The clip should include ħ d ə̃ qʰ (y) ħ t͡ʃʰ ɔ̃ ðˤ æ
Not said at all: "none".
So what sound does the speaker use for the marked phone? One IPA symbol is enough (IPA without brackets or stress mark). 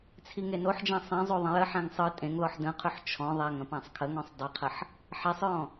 ʏ